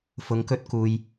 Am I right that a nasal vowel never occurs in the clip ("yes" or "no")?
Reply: yes